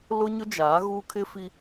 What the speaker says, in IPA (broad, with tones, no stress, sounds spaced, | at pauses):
l ʊ˦ ɲ ʊ˦ d͡ʒ aː˨˦ ɣ uː˦ kʰ ɪ˦ f i˦